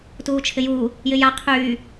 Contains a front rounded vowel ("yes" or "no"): yes